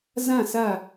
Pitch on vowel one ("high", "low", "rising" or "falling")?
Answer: falling